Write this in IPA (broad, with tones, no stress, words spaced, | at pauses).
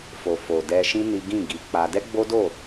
fo˨fo˨ dɛ˧ʃĩ˦ ni˦ ɡĩ˦˨ɡi˨˦k͡pa˧ dɛ˦ɡ͡bo˦do˦˨